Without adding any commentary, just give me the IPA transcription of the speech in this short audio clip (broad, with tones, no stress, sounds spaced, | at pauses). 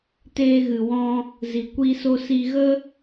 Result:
t eː˧ ɣ ɨ˨ w ɔ̃˧ | z i˨ kʷ i˧ s o˧ s i˧ ɣ ə˦